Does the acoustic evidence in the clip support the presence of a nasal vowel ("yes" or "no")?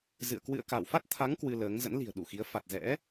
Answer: no